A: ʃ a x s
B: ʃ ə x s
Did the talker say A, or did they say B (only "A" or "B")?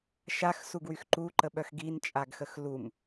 A